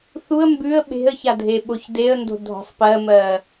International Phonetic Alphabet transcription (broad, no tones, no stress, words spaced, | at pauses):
θuə̯ mbʉə̯ ɓe̤ə̯ça dʱeɓoçdeə̯ndo̤ dʱɔ̤sˤpɜmɜ